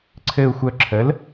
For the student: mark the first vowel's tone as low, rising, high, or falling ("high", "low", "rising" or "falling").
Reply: low